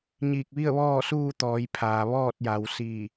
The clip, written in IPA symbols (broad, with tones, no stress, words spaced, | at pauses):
ɲiː˧˩k̚ ʋi˥˨ə̯ʋɔː˥˨suː˥˨ t̪ɔː˩˧jpʰaː˩ ʋɔː˥˨t̚ja˩˧w siː˧˩